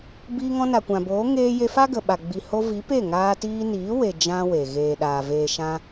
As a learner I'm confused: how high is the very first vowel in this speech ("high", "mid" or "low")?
high